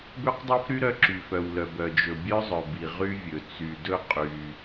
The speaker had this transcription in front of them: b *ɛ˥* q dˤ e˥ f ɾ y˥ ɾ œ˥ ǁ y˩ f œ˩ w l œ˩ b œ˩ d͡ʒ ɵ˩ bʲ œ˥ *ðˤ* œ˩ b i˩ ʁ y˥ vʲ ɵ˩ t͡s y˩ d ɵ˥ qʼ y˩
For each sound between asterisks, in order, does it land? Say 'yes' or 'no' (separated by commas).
no, no